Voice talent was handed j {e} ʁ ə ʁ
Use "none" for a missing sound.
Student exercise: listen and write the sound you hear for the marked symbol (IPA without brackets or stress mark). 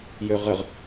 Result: ø